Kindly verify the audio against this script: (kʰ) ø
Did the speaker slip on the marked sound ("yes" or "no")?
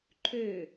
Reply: yes